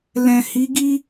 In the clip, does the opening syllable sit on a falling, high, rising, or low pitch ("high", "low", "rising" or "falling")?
low